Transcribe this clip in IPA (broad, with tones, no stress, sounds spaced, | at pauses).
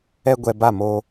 ɛ˧ ɡʷ ɛ˨ b a˦˨ m oː˧